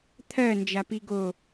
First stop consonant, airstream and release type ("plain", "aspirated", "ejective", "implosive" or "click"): aspirated